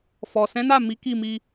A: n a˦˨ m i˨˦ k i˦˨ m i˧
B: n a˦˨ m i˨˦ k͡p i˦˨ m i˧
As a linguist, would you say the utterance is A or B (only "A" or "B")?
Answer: A